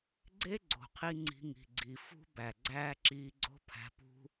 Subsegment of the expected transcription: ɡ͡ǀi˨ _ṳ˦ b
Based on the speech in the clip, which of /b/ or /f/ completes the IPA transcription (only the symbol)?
f